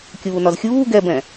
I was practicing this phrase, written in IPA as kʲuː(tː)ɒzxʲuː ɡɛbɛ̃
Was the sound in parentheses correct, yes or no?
no